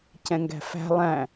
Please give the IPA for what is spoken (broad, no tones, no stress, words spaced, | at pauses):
cɛ̃ŋɡæ̤fæ̤ lˠæ̃